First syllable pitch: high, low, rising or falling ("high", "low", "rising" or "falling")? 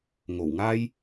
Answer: low